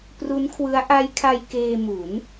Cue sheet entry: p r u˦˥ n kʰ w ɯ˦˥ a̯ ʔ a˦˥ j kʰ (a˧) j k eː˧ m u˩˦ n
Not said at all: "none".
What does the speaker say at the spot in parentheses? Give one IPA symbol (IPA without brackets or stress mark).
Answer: a˧